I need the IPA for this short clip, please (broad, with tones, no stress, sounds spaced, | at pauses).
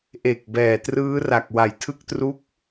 ʔ e˨˩ k̚ b ɛː˨˩ t r ɯː˦˥ r a˨˩ k̚ w a˩˦ j tʰ ɯ˦˥ k̚ t r u˦˥ k̚